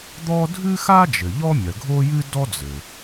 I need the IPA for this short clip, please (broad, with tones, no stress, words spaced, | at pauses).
d̪ɔ˥ dʱɨ˥xa˥d͡ʒɘ˩ ʎɔ˥mʲɐ˩ɡʱo˥jɨ˥ dɔ˥d͡zɘ˩